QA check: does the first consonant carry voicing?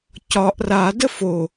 no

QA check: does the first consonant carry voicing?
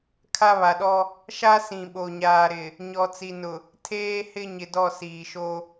no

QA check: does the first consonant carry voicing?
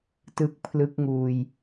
no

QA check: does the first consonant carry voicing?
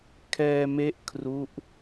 no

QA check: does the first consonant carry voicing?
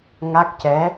yes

